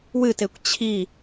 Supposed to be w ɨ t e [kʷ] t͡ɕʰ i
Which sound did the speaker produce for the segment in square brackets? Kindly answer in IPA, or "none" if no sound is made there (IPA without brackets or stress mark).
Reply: kʷ